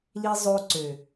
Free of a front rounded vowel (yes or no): no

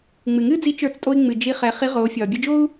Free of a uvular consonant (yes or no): no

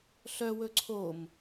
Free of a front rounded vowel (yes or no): no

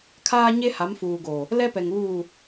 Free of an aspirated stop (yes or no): no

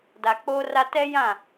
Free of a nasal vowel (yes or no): no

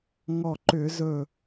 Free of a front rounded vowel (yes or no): no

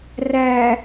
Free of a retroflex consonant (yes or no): yes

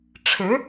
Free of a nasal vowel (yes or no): yes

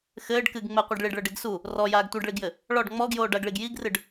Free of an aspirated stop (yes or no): yes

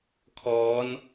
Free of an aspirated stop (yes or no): no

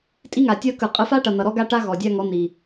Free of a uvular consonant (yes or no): no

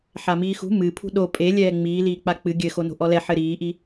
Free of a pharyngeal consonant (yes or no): no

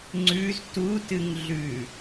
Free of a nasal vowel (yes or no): yes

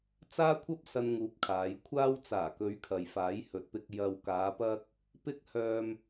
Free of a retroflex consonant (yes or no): yes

